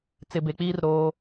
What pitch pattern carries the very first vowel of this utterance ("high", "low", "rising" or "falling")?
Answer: low